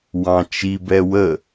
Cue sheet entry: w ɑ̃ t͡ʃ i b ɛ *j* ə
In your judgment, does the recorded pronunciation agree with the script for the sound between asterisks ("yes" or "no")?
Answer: no